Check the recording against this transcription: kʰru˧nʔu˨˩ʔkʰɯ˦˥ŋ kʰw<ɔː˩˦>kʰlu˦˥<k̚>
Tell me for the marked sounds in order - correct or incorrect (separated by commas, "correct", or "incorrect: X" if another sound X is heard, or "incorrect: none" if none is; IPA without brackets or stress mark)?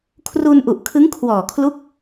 incorrect: ɔː˨˩, correct